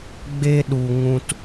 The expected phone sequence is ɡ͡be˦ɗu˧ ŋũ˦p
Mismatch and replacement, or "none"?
p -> t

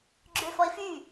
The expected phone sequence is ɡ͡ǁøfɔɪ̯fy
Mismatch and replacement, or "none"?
none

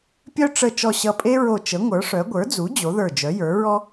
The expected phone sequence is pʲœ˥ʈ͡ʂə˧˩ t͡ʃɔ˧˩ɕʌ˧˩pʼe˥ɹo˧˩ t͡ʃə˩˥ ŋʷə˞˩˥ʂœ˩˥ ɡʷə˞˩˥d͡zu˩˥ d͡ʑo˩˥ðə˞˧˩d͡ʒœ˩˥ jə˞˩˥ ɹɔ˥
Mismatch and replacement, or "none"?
none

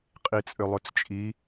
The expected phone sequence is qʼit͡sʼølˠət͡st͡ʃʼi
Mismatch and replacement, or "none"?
ə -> ø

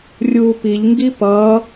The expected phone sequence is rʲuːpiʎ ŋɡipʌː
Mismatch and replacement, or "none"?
none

